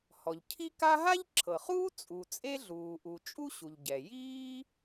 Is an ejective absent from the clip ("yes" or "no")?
no